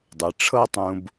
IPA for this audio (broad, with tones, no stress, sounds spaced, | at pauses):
dˤ ɯ˩˧ ʈ͡ʂʰ ɤ˥ tˤ ũ˧ b